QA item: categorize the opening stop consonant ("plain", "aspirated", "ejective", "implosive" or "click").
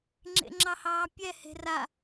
click